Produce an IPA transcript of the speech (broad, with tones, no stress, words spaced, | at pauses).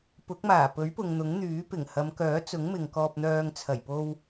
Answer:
pʊ˨˥k̚maː˨˩pɵ˨˥ɥpʊ˨ŋ n̪ʊ˨˥ŋn̪yː˨˥pɪ˨˩ŋ hɐ˨˧mkœː˨˥t͡sʊ˨˥ŋ mɪ˨ŋkɔː˧p̚n̪œː˧ŋ t͡sʰɐ˨˩jpo˧w